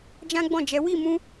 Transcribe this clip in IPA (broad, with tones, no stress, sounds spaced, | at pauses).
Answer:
d͡ʒ ã˦ ɡ͡b ɔ̃˦˨ d͡ʒ ɛ˨˦ w i˦˨ m ũ˧